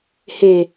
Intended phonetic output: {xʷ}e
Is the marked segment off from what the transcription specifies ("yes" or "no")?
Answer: yes